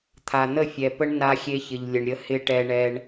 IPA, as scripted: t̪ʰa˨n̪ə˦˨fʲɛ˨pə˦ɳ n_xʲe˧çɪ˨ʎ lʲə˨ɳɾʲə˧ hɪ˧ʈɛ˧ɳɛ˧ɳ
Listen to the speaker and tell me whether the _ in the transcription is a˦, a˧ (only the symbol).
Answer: a˧